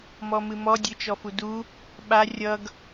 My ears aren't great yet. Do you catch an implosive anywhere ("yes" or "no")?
yes